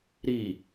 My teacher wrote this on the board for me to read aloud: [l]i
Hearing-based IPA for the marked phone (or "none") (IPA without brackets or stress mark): ɾ